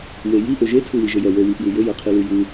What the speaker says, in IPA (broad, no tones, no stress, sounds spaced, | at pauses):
w e j i ʔ ø ʒ e tʰ u w i ʒ ɘ j œ w ə˞ w i p j u j ɘ j ə˞ qʰ i l u j u